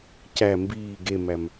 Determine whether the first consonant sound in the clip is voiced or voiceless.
voiceless